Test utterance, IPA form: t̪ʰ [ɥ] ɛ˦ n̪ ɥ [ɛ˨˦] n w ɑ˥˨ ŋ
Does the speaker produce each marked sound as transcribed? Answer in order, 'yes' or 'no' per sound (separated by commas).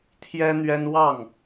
no, no